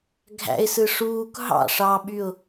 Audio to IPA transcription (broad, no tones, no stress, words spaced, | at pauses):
ɡʱæ̰ɪ̯sɯ ʂuːk ɦɑ̰ ʂɑɓyʊ̯